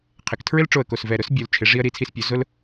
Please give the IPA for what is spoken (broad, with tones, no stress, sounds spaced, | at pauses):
qʰ ɪ˩˧ k tʰ ɹ ɪ˥ l ʈ͡ʂ o˧˩ ə̯ k o˧˩ s v ɛ˧˩ ɾ ʊ˥ s bʲ o˩˧ l t͡ʃʰ ɪ˩˧ ʐ i˧ ə̯ ɾ i˩˧ t͡sʰ i˧ s pʲ o˩˧ z ʊ˥ l